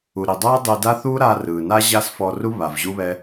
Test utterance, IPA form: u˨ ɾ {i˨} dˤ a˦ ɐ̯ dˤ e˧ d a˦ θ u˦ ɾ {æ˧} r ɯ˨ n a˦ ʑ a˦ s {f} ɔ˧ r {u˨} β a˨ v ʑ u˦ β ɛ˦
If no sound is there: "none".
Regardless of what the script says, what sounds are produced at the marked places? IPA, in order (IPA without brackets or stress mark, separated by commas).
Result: i˨, a˧, f, u˦